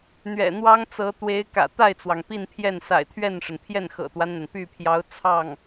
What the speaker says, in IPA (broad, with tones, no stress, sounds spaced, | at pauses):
n̪ ɥ ɛ̰˨˩ n̪ w ɑ˥ ŋ t͡s ɤ˧˥ t̪ w e˧˥ ɪ̯ k ä̰˨˩ t̪ a˥˩ ɪ̯ t͡s w ɑ˩ ŋ p i˥˧ n pʰ j ɛ˥˩ n s a̰˨˩ ɪ̯ t̪ʰ ɥ ɛ˥˩ n ʂ ə˩ n pʰ j ɛ˥˩ n x ɤ̰˨˩ t̪ w a˦ n n̪ a˩ n p y˥˩ pʰ j ɑ˧˥ ʊ̯ t͡sʰ ɑ˥˩ ŋ